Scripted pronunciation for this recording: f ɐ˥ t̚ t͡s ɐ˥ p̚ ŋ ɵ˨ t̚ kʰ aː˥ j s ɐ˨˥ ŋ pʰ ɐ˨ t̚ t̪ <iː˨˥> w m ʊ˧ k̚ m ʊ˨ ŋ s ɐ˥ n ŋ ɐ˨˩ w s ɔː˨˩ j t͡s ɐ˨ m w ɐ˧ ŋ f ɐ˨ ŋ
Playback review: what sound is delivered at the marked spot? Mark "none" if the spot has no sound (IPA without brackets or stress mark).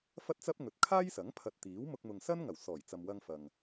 iː˨˥